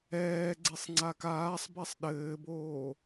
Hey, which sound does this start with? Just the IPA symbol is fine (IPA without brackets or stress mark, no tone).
ɛː